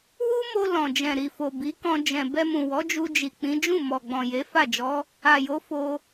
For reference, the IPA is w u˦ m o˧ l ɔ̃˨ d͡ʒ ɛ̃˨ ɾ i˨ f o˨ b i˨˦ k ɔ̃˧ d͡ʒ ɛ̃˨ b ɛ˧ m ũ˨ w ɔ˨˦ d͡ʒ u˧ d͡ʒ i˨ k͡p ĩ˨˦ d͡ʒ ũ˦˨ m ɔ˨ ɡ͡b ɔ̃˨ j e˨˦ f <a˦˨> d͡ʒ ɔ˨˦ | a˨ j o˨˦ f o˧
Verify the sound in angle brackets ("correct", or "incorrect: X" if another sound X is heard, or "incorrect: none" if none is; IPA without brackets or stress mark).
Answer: correct